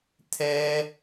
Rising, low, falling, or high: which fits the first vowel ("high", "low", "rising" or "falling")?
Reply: high